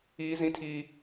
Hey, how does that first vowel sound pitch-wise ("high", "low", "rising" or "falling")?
high